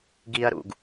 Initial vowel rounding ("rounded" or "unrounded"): unrounded